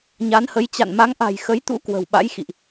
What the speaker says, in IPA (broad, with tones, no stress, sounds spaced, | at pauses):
ɲ a˨˦ n h ə˨˦ j t͡ɕ a̰˧˨ n m a˨˦ ŋ ʔ a̤˨˩ j x ə˨˦ j t̪ ṵ˧˥ k w ə̤˨˩ w ɓ a̰˧˥ j x ḭ˧˨ ʔ